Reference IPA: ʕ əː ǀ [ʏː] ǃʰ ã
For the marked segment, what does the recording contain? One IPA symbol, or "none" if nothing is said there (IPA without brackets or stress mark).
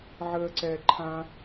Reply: ɛː